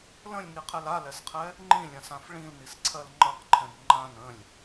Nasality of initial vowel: nasal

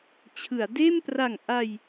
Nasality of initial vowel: oral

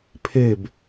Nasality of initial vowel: oral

